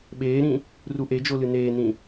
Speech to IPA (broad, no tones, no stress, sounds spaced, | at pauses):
ɓ eː ɾ ĩ | r u ʔ e d͡ʒ o l ɨ n eː n ĩ